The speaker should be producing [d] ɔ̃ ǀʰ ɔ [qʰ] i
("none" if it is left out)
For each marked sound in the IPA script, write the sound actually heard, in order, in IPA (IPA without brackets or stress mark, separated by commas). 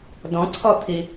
d, t̪ʰ